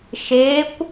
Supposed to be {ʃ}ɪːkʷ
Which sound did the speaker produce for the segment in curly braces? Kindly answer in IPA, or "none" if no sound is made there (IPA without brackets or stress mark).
ʃ